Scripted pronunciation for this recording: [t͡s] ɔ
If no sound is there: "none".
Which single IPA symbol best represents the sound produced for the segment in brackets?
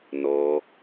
n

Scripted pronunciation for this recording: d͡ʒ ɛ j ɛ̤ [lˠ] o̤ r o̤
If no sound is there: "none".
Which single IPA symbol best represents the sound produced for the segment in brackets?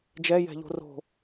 ʎ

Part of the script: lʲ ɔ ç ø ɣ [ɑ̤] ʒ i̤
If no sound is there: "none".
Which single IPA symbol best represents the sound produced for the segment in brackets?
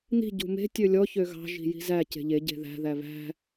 ɑ̤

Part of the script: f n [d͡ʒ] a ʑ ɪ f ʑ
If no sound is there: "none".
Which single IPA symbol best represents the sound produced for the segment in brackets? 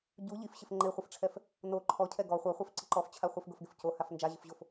d͡ʒ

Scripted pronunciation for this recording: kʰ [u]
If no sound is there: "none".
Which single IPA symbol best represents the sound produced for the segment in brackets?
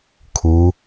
u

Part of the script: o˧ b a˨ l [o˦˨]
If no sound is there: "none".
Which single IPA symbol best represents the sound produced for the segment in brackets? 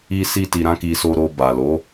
o˨˦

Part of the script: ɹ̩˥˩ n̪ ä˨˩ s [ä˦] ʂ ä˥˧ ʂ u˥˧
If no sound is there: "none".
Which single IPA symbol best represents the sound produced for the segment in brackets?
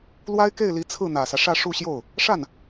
ä˦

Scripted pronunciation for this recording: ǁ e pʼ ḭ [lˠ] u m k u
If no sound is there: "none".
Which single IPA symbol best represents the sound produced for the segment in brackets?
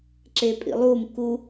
lˠ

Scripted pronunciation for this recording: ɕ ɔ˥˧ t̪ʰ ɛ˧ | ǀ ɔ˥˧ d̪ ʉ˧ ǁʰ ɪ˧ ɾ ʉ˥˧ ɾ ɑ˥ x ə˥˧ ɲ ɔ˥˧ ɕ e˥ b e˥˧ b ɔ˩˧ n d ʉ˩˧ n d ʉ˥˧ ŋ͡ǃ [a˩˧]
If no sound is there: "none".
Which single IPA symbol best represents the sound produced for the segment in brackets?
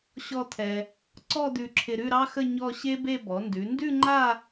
a˥˧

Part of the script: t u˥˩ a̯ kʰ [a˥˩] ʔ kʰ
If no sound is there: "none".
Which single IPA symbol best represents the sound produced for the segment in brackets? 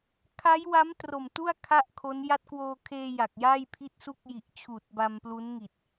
a˥˩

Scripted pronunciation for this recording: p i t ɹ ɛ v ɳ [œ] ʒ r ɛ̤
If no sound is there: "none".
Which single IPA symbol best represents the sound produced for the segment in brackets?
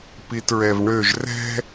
ø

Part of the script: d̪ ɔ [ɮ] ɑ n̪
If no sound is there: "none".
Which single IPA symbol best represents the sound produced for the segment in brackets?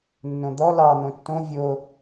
l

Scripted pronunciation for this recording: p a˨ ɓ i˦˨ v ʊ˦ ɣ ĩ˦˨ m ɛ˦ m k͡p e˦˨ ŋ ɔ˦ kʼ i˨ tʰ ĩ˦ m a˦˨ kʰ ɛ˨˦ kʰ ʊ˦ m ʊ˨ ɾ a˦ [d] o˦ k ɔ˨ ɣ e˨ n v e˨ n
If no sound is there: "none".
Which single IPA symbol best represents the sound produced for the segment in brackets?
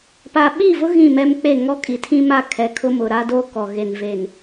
d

